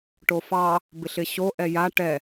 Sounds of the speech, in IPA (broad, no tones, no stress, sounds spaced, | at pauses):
ʈ o f ɑ | b ɪ ɬ ɪ ɕ o ʔ ɛ j a ʈ ɛ